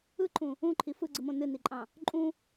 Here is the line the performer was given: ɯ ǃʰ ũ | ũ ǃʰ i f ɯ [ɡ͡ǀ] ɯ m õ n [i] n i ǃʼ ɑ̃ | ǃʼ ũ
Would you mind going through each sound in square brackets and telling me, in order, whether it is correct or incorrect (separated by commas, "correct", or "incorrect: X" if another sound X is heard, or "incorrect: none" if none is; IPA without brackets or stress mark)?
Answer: correct, incorrect: ɨ